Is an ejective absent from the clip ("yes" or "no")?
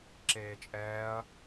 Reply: no